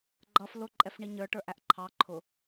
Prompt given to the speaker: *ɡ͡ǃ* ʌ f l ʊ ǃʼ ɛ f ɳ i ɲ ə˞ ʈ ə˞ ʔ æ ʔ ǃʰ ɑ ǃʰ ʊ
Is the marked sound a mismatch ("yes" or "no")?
no